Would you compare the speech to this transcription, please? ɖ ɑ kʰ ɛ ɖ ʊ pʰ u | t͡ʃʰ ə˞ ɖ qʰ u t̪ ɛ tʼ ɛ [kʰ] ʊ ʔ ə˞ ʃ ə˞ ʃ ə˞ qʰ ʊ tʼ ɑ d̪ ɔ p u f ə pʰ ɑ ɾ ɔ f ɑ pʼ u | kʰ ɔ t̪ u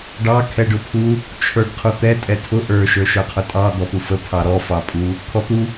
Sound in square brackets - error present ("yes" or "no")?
yes